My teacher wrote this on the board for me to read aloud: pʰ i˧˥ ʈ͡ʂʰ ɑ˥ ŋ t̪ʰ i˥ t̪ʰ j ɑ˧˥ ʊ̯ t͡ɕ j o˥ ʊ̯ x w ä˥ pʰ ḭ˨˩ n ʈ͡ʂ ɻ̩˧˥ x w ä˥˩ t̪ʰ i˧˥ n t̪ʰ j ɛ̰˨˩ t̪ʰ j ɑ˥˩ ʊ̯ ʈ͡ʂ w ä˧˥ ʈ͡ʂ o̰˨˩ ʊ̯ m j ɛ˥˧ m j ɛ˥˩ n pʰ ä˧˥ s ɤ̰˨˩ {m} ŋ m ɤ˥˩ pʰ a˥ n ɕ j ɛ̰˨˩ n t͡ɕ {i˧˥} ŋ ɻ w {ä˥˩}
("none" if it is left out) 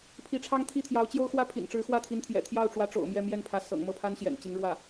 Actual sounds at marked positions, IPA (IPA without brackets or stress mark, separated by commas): none, i˧˥, ä˥˩